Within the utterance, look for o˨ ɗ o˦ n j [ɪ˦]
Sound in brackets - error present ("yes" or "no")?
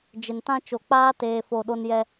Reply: yes